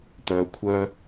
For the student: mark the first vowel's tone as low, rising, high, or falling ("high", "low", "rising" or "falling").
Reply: low